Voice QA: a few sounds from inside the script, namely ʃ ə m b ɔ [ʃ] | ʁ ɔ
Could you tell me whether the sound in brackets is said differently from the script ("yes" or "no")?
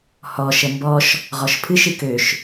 no